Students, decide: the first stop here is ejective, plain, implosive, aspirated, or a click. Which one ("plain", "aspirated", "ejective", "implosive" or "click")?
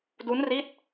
plain